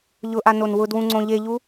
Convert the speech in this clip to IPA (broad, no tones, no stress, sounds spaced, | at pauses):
ʎ ʊ ʔ a n o n w ʊ d w ũ ŋ͡ǀ õ ʎ e ʎ u